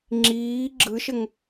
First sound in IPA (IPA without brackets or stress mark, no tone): ŋ͡ǁ